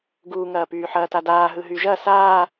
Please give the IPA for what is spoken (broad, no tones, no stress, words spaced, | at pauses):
ɡuːŋɐːpyːħɐː tadaː ɦɯɦyʒɐ saː